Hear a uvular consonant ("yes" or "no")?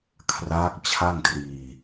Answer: no